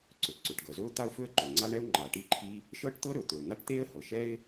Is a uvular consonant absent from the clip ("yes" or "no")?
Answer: yes